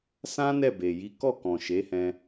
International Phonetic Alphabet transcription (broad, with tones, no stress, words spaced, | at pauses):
sã˦ nɛ˦˨be˨ji˨˦ kɔ˦˨kɔ̃˨ ʃe˨˦hɛ̃˧